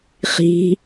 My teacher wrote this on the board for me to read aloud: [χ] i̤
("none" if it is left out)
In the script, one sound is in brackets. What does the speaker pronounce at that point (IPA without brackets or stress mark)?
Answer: χ